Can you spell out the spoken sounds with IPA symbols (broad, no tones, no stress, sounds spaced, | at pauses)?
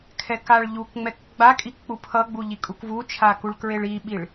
kʰ ɛ k a ɭ ʎ u k ŋ͡m ɛ k ɡ͡b a kʼ i k k͡p u pʰ ʌ ɡ͡b u ʎ i kʼ u k v u t͡ʃʰ a k u ɭ k ɹ e ɭ i ɓ i ɭ